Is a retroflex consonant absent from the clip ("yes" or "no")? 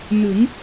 yes